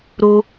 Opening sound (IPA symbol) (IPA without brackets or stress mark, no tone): ɾ